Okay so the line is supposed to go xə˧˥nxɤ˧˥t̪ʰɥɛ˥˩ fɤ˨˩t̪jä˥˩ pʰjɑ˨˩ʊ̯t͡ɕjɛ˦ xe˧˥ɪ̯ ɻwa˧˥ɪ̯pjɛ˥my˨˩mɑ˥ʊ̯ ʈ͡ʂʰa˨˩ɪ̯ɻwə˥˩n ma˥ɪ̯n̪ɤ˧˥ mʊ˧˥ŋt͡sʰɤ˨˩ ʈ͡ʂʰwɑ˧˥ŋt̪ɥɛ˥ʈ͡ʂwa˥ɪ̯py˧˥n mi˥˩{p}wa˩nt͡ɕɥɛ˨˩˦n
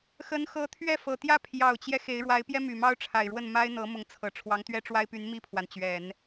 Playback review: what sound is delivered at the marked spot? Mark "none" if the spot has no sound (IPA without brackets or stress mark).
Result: pʰ